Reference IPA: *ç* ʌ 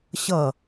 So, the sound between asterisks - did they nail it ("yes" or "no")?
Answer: no